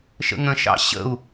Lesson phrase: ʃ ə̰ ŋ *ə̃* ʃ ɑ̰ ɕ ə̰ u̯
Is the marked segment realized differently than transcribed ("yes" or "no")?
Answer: no